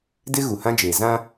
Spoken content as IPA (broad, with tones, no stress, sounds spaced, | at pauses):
d ɪ˦ ɣ u˨ h ã˦ d͡ʒ eː˨ z ã˦